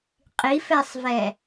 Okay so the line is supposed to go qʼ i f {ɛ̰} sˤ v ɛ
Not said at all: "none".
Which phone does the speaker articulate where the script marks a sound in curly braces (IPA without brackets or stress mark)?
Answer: ɛ